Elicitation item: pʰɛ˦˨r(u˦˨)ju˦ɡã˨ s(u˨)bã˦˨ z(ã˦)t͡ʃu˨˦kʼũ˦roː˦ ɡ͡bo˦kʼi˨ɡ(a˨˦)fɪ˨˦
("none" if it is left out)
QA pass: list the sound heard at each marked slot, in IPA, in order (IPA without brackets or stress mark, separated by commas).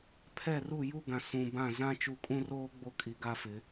u˦˨, ũ˨, ã˦, a˦